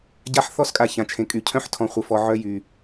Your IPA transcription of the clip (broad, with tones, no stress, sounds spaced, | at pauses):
ɟ a˦ ħ θ ɔ˦ s kʼ a˨ ç ã˨ t͡ʃʰ ẽ˨ kʼ y˨ cʰ œ̃˦ ħ tʰ ɔ̃˨ χʷ ə˨ f ɔ˨ ʕ œ˦ j y˨